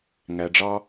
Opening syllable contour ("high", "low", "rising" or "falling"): low